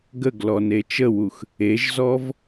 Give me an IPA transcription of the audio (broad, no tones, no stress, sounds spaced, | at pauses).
ɡ ə ɡ l ɔ n e t͡ʃ ə w u x | e ʒ z ɔ v